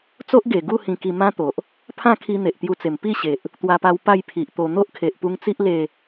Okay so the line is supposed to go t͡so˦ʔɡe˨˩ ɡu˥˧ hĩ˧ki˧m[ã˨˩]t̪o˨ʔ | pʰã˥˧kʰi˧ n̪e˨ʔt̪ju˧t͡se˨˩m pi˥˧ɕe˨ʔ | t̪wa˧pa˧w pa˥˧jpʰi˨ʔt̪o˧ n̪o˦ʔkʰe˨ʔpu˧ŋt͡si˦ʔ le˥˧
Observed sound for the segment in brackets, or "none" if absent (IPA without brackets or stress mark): ã˦